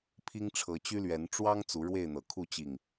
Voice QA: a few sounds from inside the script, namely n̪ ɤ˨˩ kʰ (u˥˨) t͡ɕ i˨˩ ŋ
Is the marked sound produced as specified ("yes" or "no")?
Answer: yes